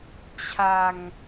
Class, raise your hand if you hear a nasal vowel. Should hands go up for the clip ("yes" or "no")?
no